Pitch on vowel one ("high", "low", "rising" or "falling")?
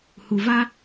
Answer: low